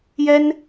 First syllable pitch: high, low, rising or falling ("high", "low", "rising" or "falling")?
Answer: high